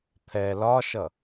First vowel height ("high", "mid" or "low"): mid